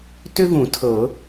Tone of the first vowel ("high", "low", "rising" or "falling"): high